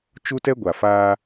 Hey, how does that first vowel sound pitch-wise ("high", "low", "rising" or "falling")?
high